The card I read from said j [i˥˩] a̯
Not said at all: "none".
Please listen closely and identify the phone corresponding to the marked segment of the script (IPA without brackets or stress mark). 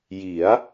i˩˦